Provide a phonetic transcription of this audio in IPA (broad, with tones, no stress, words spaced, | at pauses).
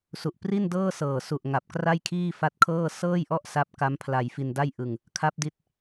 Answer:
su˨˩ʔpri˥˩ndɤː˥˩sɤː˨˩ su˨˩ʔŋa˨˩p̚ kra˥˩jkʰiː˥˩ fa˦˥t̚kʰɤː˥˩ sɤː˥˩jʔɔ˥˩ʔ sa˦˥p̚ka˦˥m pʰla˧jfi˧nda˥˩jʔɯ˧ŋ | kʰa˦˥p̚di˦˥t̚